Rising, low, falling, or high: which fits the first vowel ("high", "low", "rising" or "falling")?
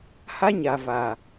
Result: high